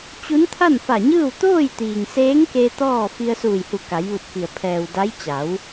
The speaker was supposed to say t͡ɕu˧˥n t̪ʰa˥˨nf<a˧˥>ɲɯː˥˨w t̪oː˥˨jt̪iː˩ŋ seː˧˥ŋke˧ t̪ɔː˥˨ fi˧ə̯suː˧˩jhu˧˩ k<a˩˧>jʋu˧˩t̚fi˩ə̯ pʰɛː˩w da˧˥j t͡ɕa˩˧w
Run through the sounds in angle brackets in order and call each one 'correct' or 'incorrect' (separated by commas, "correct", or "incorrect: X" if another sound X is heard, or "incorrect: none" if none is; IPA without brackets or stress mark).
incorrect: a˧˩, correct